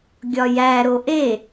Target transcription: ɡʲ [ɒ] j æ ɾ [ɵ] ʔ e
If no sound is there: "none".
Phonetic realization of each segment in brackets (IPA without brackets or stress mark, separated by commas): ɒ, o